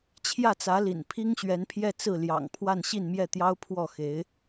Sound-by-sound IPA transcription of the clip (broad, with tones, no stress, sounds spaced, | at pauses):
t͡ɕʰ j ä˥˩ t͡s ä˧˥ l ḭ˨˩ n pʰ i˥ ŋ ɕ ɥ ɛ˧˥ n pʰ j ɛ˥˧ t͡s ɹ̩˥˩ l j ɑ̰˨˩ ŋ pʰ w a˥˧ n ɕ i˥˧ n m j ɛ˥˩ t̪ j ɑ˥ ʊ̯ pʰ w ɔ˥˩ x e˧˥ ɪ̯